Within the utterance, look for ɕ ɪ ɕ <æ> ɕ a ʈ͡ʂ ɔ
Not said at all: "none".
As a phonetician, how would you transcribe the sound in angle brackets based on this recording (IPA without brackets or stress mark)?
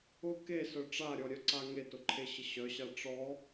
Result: œ